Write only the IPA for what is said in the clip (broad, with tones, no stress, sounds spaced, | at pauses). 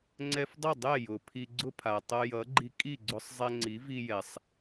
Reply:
ŋ͡ǀ ɛ˧ f dˤ ʌ˥˩ dˤ ɛ˥˩ j ʊ˩ pʰ i˧ ɡ͡ǀ ʊ˥ pʰ a˩ tˤ ʌ˧ j ʌ˩˥ ɡ͡ǃ i˧ kʼ i˥˩ ɡ͡ǀ ʊ˧ sˤ zˤ ɛ˧ ŋ͡ǀ i˩˥ v i˧ j ɛ˩ sˤ